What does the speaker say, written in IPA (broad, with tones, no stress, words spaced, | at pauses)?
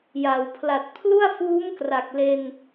ja˩˦wpʰla˨˩t̚ pʰlu˥˩a̯fuː˦˥m kra˨˩k̚le˧n